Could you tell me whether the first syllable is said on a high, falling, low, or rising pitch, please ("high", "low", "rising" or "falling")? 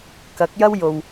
rising